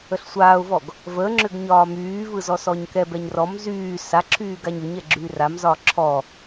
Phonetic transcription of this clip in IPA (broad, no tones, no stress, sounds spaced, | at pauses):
ə ɬ sʷ aː ʊ̯ v ɔ ɡ | v ə ŋ͡ǁ ʏ ɡ ɲ ɒː m yː v ɯ z ɔ s ɔ ɲ k ɛ b ɛ ɲ r ɔ m z yː s a ǁʰ yː ɡ a ɲ ʏ ɲ ɛ ɡ͡ǁ yː r a m z ɒː ǁʰ ɔ